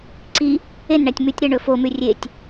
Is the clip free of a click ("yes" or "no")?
no